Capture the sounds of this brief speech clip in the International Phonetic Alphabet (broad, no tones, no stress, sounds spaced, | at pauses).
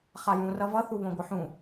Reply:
χ a j ũ r ʌ v ʌ θ u β õ ɡʷ ɯ ħ ũ